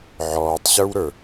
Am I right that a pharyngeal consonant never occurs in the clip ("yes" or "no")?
no